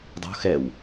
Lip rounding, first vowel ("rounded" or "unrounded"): rounded